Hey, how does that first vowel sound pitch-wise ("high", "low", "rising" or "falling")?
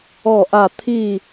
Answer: falling